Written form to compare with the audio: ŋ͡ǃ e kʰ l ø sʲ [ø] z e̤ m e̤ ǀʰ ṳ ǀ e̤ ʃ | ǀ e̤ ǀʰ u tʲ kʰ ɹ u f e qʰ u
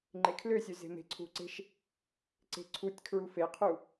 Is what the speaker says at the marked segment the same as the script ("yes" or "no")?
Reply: yes